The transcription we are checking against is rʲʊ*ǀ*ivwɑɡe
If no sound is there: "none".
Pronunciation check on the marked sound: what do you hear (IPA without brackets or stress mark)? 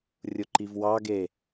ǃ